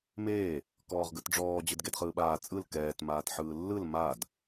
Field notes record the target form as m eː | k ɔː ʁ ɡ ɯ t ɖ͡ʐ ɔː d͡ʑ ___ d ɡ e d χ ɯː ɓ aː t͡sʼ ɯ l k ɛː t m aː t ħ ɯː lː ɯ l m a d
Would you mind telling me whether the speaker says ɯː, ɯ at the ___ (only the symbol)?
ɯ